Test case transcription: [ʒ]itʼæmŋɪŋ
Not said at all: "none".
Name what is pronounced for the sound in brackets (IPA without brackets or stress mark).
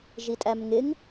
ʒ